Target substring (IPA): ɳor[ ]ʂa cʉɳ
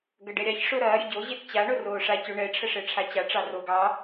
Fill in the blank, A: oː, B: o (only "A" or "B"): A